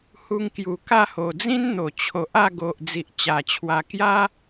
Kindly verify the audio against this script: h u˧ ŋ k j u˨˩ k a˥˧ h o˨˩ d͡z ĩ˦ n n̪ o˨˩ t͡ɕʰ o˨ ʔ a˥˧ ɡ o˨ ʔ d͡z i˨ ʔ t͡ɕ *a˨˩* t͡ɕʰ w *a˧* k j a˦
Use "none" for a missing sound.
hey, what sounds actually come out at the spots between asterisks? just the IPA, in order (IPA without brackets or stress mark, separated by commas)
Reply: a˨˩, a˧